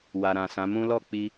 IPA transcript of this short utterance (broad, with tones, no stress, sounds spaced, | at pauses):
w a˨ ɾ ã˨ s ã˨˦ m ũ˦ l ɔ˦˨ k͡p i˧